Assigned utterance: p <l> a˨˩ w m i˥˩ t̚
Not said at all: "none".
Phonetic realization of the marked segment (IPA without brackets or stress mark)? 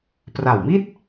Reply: r